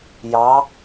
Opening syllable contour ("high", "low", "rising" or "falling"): rising